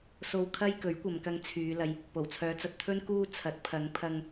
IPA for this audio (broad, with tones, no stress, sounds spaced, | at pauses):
s o˨ w kʰ ɐ˧ j k ɵ˨˥ ɥ kʷ ɐ˨ m k ɐ˧ ŋ t͡sʰ yː˨˧ l ɐ˨ j | p o˨˩ w t͡sʰ œː˨˧ t͡s ɐ˧ t̚ t̪ʰ ɵ˥ n k uː˧ t͡sʰ ɐ˨˥ t̚ pʰ ɐ˨˧ ŋ pʰ ɐ˧ ŋ